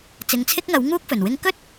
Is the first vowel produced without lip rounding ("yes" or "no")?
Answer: yes